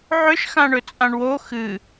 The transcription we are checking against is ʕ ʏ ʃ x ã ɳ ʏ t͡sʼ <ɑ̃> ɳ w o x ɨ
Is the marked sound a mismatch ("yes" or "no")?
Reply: yes